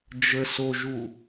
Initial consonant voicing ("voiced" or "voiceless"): voiced